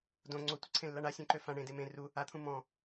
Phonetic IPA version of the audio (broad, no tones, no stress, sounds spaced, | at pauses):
d õ ŋ͡ǀ o tʷ ə ǀʰ ẽ lː a ɳ a sʲ õ ǃ ø f ã ɳ ẽ d e m ẽ r u | a t̪ʰ ũ m ɔ̃